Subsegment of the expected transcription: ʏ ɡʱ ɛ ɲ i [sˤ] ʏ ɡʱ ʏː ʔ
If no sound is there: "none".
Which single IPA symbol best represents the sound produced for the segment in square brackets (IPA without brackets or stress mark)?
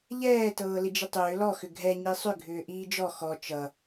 sˤ